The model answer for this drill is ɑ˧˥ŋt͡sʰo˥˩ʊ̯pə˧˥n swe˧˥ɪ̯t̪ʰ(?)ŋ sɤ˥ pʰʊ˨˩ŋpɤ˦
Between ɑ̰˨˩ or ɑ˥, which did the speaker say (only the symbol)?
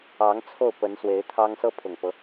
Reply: ɑ˥